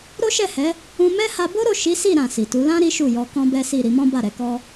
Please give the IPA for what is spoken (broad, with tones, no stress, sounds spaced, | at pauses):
ɾ o˦ ʃ ɛ˦˨ h ɛ˨˦ | ũ˧ m ɛ˦ h a˧ b o˦ ɾ o˦˨ ʃ i˨˦ s i˦˨ ɾ ã˨ s i˨ t u˨˦ l ã˦ ɾ i˦ ʃ u˦˨ j ɔ˧ k ɔ̃˦ b ɛ˦ s i˦˨ ɾ i˧ m ɔ̃˦ b a˦˨ ɾ ɛ˧ k ɔ˧